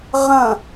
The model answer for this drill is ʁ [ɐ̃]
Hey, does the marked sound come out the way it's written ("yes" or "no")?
yes